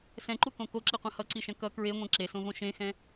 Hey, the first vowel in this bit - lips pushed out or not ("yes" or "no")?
no